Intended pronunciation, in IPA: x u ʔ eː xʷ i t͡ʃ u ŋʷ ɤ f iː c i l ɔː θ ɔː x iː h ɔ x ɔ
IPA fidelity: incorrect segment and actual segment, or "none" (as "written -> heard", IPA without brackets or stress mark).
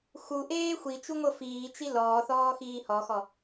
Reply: c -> t͡ʃ